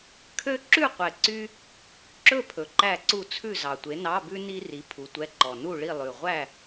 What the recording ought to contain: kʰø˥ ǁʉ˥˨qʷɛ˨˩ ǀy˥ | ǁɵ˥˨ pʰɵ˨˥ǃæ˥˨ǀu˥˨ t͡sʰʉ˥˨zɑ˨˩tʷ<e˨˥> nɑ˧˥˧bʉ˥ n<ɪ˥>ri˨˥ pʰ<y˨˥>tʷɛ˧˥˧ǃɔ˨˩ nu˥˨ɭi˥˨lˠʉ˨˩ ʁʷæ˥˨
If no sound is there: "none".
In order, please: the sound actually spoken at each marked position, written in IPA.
e˨˥, i˥, u˨˥

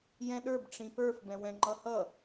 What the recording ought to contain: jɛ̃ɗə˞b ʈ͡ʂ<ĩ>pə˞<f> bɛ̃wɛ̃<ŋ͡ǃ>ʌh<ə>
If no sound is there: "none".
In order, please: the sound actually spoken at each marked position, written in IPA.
ĩ, f, ŋ͡ǃ, ʌ

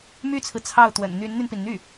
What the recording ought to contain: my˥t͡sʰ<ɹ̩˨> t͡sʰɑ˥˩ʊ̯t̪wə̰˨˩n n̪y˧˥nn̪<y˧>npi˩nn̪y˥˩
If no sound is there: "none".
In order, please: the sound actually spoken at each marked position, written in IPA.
ɹ̩˨, y˧

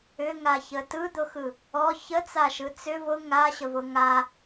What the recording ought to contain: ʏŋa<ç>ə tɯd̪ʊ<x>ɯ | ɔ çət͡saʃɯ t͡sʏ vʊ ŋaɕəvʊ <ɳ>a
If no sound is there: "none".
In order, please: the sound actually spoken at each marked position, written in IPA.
ç, x, ŋ

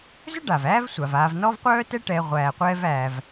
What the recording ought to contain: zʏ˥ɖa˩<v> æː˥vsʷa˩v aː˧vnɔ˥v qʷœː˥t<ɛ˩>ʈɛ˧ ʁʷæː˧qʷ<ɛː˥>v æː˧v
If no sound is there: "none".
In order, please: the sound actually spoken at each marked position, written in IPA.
v, ɛ˥, ɛː˥

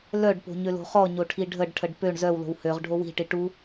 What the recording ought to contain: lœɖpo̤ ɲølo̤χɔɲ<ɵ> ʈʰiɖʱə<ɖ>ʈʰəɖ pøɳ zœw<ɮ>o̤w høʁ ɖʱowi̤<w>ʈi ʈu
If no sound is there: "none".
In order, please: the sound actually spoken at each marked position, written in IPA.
o, ɖ, l, none

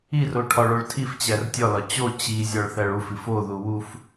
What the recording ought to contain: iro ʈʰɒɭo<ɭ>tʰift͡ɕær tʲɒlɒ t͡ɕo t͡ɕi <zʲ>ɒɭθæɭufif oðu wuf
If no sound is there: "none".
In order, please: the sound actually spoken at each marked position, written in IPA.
ɭ, zʲ

